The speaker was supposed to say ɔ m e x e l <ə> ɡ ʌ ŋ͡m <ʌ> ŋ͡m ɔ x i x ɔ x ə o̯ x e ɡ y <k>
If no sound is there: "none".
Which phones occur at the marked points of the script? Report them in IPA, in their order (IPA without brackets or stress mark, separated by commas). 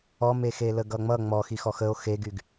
ə, ʌ, ɡ